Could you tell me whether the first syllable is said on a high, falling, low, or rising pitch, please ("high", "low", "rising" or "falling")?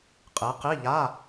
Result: rising